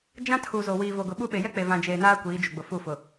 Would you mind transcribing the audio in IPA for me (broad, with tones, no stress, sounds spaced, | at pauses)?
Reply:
d͡ʒ ã˦ tʰ u˨ z o˨ w iː˨ v o˨ ɡ ʊ˨ ɓ u˦ ɓ e˨ j ɛ˦ k͡p e˨ v ã˨ d͡ʒ eː˨ n aː˦ kʷ iː˨˦ d͡ʒ u˨ ɡ͡b ʊ˨ f u˦˨ f ʊ˨